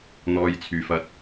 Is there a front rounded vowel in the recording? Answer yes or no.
yes